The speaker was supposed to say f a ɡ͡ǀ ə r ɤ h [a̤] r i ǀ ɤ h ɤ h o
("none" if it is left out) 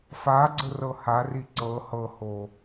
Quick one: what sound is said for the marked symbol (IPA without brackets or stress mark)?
a